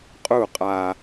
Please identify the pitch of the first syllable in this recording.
falling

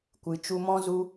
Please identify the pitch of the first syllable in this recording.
low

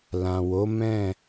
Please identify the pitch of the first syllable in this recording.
low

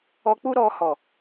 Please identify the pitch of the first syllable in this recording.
high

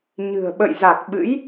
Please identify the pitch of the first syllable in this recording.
low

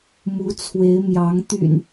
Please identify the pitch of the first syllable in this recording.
rising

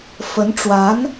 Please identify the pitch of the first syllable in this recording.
rising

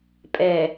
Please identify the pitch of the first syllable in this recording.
low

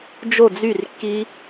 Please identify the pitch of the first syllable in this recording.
falling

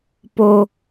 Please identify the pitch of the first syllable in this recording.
high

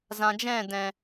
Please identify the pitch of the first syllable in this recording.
low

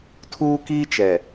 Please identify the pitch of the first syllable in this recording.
high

